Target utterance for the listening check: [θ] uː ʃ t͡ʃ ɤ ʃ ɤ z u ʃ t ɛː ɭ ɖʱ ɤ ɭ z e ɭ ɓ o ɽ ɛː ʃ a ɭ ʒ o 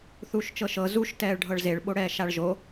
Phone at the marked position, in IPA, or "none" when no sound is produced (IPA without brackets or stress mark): θ